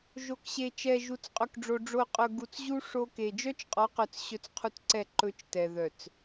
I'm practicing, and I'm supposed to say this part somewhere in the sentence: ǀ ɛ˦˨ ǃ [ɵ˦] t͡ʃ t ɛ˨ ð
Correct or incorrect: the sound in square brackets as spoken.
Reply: correct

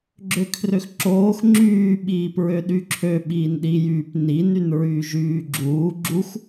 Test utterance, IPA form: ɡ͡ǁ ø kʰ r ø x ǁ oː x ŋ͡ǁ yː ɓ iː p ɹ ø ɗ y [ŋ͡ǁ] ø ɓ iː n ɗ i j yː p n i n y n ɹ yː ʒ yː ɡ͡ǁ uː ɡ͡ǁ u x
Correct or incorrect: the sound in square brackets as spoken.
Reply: incorrect: ǁʰ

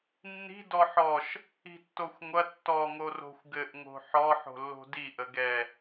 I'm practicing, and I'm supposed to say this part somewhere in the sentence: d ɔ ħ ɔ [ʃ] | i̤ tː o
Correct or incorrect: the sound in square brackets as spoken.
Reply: correct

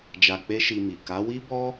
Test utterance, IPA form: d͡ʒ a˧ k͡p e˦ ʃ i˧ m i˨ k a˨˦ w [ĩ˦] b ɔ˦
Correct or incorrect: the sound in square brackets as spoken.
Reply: incorrect: i˦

